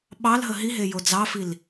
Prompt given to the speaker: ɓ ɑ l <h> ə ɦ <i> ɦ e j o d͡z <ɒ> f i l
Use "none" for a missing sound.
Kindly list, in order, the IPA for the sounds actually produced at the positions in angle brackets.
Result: ɦ, i, ɑ

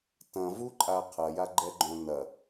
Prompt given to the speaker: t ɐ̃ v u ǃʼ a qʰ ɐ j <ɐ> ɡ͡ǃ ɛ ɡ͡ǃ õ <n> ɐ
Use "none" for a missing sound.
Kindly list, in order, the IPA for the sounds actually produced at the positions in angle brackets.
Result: a, n

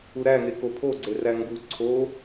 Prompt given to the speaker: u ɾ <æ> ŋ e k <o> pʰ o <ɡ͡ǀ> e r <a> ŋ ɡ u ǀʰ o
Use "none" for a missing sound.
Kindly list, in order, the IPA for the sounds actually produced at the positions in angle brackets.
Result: æ, o, ɡ͡ǀ, æ

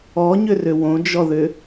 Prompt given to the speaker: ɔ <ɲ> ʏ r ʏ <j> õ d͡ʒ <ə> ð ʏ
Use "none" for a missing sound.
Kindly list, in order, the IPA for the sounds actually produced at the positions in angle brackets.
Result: ɲ, w, ɔ

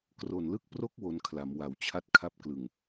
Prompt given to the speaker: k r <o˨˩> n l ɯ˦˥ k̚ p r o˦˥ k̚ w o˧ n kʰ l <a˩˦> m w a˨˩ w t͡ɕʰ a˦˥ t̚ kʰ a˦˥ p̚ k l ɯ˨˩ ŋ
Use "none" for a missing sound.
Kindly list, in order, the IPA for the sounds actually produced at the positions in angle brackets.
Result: o˨˩, a˩˦

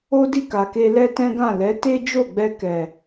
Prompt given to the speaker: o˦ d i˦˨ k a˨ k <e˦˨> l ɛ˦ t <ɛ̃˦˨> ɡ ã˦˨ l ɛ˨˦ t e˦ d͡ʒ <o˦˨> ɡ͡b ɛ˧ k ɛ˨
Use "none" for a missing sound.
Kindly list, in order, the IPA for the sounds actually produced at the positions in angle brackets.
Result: e˧, ɛ̃˦, o˦˨

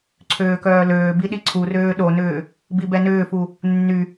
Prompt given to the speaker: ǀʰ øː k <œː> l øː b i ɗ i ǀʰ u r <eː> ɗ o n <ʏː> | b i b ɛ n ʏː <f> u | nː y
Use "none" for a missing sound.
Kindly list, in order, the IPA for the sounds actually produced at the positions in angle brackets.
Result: œː, øː, ʏː, f

